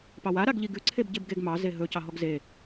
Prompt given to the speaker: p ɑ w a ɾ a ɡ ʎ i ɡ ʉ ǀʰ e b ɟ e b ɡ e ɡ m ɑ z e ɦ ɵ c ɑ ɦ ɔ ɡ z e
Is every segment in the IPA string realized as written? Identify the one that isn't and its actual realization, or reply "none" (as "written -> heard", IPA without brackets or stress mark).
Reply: none